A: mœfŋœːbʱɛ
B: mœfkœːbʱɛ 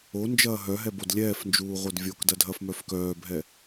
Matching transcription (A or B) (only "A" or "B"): B